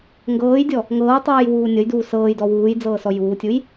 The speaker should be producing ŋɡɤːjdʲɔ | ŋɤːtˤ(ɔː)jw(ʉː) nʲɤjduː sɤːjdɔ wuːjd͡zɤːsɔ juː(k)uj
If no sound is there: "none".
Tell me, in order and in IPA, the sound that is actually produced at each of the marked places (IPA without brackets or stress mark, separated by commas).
ɤː, uː, tʲ